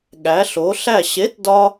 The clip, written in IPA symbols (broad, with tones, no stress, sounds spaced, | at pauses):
ɠ æ˨˥ ɬ o˨˥ ɬ æ˥˨ ɕ e˨˥ t d ɒ˥